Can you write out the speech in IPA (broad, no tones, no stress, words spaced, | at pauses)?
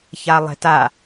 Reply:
çalˠɛ̤ta